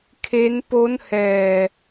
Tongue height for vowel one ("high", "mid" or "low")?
mid